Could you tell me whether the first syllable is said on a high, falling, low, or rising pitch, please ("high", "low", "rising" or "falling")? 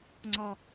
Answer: high